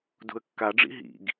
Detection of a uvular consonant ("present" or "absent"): absent